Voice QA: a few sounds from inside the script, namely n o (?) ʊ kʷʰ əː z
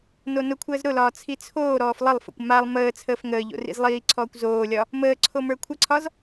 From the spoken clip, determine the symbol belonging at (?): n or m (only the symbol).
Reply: n